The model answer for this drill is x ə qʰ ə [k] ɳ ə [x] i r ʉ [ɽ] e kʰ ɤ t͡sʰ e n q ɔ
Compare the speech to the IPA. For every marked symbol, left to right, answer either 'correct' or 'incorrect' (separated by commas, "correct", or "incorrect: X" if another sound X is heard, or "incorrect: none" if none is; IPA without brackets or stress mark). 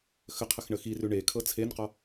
incorrect: x, correct, incorrect: ɳ